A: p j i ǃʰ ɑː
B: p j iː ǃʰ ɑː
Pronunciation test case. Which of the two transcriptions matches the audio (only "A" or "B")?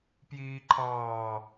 B